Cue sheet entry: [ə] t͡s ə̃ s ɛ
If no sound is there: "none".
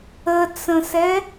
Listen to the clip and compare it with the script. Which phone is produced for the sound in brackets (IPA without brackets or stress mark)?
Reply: ə